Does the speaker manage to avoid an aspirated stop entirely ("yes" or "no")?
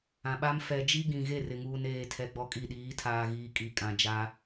no